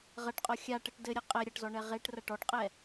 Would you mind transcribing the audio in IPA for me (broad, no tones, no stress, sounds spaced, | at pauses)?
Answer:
ʁ ɐ ʈ qʼ ɔ xʲ a ʈ ɘ ʈ d ɘ ɾʲ ɘ qʼ ɛ ɾʲ ɐ ʈ z ɔ ɳ ɛ ʁ e ʈ r ɐ ʈ ɔ ʈ qʼ ɛ